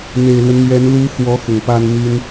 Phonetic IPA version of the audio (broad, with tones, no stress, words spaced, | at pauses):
n̪e˨˩ɪ̯lwə˦nmɥɛ˧˥n lu˧˥xwɔ˧˥ xʊ˨˩ŋpa˥nmy˥n